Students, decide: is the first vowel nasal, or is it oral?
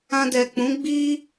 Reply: nasal